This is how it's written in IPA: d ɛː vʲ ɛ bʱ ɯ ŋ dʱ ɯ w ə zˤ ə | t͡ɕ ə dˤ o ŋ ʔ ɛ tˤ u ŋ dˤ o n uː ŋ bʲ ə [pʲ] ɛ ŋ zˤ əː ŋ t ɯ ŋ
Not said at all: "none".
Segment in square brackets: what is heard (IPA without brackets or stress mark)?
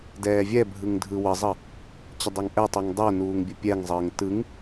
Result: pʲ